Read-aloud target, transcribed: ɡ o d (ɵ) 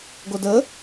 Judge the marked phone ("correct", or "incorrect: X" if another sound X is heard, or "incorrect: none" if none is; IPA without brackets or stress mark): incorrect: ə